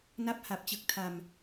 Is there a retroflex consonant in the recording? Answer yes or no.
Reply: no